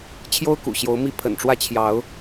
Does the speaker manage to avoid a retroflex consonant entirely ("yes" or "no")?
no